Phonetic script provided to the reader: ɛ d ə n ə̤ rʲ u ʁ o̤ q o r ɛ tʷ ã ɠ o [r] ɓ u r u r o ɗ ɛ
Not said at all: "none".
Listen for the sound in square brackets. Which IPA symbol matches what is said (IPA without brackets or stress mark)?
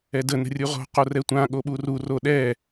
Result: none